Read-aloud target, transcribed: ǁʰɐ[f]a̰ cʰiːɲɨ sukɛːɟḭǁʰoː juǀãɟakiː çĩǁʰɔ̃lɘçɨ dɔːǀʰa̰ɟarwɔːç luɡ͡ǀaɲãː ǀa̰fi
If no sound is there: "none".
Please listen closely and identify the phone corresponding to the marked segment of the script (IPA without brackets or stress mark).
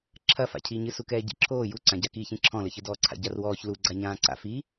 f